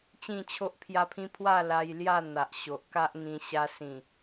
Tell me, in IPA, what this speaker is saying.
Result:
t͡ɕ ĩ˥˧ t͡ɕʰ o˦ ʔ pʰ j a˦ pʰ ĩ˦ pʰ w a˥˧ l a˧ j l j a˥˧ n̪ a˨ ʔ ɕ o˨ ʔ k a˦ ʔ ŋ ĩ˧ ɕ a˧ s ĩ˨˩

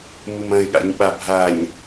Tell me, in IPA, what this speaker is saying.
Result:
m u m ɐ̃ ɪ̯ ɠ a̰ ɲ ɓ a bʱ a ɲ

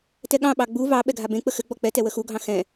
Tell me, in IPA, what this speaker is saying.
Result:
t ɛ ɠ ɑ̃ ɓ ɑ ɡ͡b u v ɑ ɓ ɛ ɡʱ a b ẽ k͡p ə x ɘ ɡ͡b ɔ k͡p ɛ t ɛ w ə x u ɡʱ ɑ̃ x ɛ̃

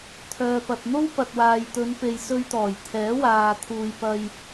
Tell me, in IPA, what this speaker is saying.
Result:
t̪ʰ œː˨ p ɐ˨ t̚ n̪ o˥ w p ɐ˨ t̚ w aː˨ j t̪ ɵ˨˧ n p e˨ j s ɵ˧ ɥ t̪ ɔː˨˩ j t̪ʰ ɛː˨˥ w aː˨ t̪ʰ uː˨ j p ɐ˧ j

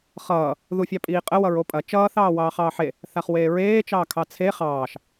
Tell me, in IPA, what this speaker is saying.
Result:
χ ʌː | ð u fʲ ɑ pʼ iː qʼ ə w ʌ ɹ o pʼ ɐ t͡ʃ ʌː θ ɑː w ɑː χ ɑː ħ e | θ a χ w eː ɹ eː t͡ʃ ɑː kʰ ɑ t͡sʰ e χ ɑː ʃ

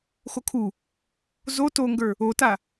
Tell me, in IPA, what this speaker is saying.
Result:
x o kʰ u | z o t o ŋ ɡ ə˞ | o t a

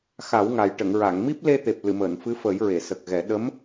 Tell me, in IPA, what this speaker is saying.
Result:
x a˨˩˦ w ŋ a˨˩ j ʈ ə˨˩˨ ŋ ɹ a˨˩˨ ŋ m i˦˥ p̚ l e˧ t̪ e˨˩ p̚ l ɨ˨˩˨ m əː˨˩˨ n f ɨ˧˥ f əː˨˩˦ j ɹ e˨˩˨ s ə˨˩ k̚ ɣ ɛ˨˩˦ ɗ ə˧˥ m

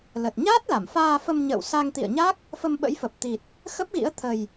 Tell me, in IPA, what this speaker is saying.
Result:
l ə˨˩ t̚ ɲ aː˦˥ t̚ l a˧˩ m f aː˧ f ə˧ m ɲ ə̰ː˧˨ w s a˧ ŋ t̪ ḭ˧˨ ə̯ ɲ a˦˥ k̚ | f ə˧ m ɓ ə̰˧˥ j f ə˨˩ p̚ t̪ i˨˩ t̚ | x ə˦˥ p̚ ɣ ḭ˧˥ ə̯ t̪ʰ ə˨˩ j

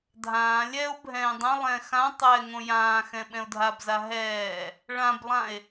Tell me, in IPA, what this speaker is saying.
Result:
dʱ ãː lʲ ɛ o̯ bʱ ɛ̃ː dˤ ɛ̃ lˠ ɛ̃ x ã tˤ ɛː ŋ õ j ãː x ɛ̃ ɓ ɛ̃ o̯ dʱ a b z a ɦ ɛː | ɭ ã b lˠ ã e̯

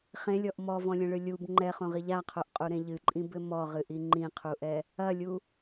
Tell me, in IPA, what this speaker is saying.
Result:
χ ẽ lʲ ɔ ʔ m ɔ v ɔ̃ lʲ ɛ̃ ɭ ɨ lʲ u b ŋ͡ǃ ɛ χ õ ʁ i ʎ a qʰ o ʔ qʼ u ɾ ẽ ʎ ɨ ǃʼ ĩ b ɘ m ɔ ʁ ɨ ʔ i ŋ͡ǃ ĩ qʰ u ʔ ɛ | ɐ lʲ u

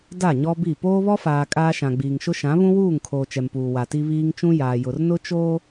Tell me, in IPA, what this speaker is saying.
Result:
d a˦˨ ɲ ɔ˦ b i˦˨ p oː˦ β ɔ˦ f aː˨ kʼ aː˦ ʃ ã˨ ɡ͡b iː˨ ŋ ʃ ʊ˦ ʃ ã˨˦ β ũ˦ w uː˦˨ ŋ kʰ oː˨ t͡ʃ ɛ˨ m p uː˨ w a˨ t i˦ β iː˦ ŋ t͡ʃ ũ˦ j aː˨ j ʊ˨ r n ʊ˦ t͡ʃ oː˦

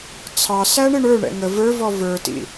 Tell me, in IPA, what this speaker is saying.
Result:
t͡sʰ ɑ s æ ɳ ɪ ɳ ə˞ ɳ ɛ̰ ŋ ə v ə˞ v ɔ v ə˞ t ḭ

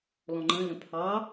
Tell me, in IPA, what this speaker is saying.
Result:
l ɔ̃ ŋ͡ǃ ə̃ l ə̃ pʰ ɑ

